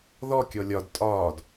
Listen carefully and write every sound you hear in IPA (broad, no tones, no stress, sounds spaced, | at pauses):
ð ɔ kʲ ɔ lʲ ɒ d tʼ ɒː d